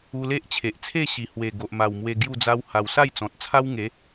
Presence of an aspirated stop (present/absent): present